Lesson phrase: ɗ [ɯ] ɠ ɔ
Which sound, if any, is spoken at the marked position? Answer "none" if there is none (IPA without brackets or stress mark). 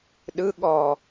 ɯ